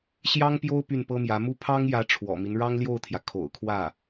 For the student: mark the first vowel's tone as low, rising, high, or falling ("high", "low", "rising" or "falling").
high